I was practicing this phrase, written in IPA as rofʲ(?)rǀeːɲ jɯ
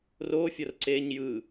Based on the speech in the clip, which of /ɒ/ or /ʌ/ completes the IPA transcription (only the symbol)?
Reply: ʌ